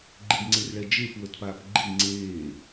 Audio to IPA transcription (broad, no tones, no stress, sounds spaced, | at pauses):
ɡ͡ǃ i ɖ ŋ͡ǀ e r ɭ ɛ d͡ʒ e p w ə t p aː p ɡ͡ǃ i ŋ͡ǀ eː